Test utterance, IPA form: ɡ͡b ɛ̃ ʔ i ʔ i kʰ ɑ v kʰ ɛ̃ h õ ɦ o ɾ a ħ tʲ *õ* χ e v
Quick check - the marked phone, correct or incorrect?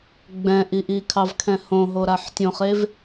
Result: correct